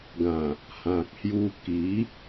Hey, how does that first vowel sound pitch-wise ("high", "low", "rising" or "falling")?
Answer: low